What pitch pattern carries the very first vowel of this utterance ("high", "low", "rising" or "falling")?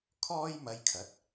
high